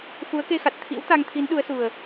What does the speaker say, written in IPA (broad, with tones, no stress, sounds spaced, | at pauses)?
f u˨˦ ə̯ k e˧ x a˨˩ t̚ t̪ʰ ḭ˧˥ w t̪ a˧ ŋ t̪ʰ i˨˦ n ɗ u˨˦ ə̯ s u˨˩ ə̯